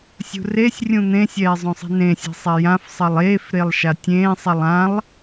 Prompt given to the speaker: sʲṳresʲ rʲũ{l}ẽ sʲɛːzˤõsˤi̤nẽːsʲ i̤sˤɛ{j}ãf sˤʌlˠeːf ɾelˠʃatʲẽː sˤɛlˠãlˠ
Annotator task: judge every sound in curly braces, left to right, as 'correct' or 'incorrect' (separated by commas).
incorrect, correct